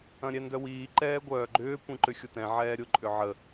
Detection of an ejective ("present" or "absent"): present